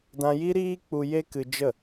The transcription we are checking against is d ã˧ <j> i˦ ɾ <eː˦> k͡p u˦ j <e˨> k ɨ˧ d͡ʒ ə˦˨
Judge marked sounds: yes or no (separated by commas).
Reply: yes, no, no